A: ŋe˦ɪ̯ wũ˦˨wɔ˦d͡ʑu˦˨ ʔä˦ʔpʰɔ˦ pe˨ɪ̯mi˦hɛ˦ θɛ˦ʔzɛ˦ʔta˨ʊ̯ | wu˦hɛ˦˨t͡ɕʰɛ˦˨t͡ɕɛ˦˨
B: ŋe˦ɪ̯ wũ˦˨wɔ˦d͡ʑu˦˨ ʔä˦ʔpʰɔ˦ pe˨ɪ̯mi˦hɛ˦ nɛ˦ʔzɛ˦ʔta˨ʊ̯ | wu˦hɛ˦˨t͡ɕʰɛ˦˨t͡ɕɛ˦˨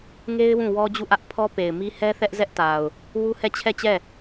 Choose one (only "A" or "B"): A